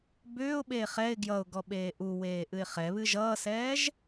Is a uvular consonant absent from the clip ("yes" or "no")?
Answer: no